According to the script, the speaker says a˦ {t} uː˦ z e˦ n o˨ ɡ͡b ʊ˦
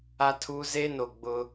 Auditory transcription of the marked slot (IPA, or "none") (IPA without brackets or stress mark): tʰ